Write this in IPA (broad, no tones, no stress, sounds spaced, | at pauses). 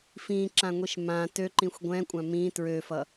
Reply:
f ĩ ǁ ã ŋʷ i ʃ m ã t ø ǃ ĩ xʷ ɡʷ ɛ̃ kʷʼ ã m ĩ t ɹ ø f ʌ